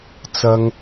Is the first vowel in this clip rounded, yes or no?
no